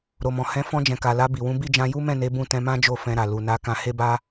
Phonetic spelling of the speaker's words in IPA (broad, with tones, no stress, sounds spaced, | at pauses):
ɾ o˨ m ɔ̃˨ h ɛ̃˨˦ f ɔ̃˧ d͡ʒ ɛ̃˨ k a˨ l a˧ b i˨ w ũ˨˦ b i˦˨ d͡ʒ ã˧ j u˦ m ɛ̃˦˨ n e˨˦ b ũ˦˨ t ɛ̃˧ m ã˦ d͡ʒ o˦˨ f ɛ̃˧ ɾ a˨ l u˨ n a˨˦ k ã˧ h e˦ b a˦